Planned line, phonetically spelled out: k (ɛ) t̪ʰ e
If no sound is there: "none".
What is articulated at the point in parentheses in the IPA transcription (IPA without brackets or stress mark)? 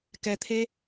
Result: ɛ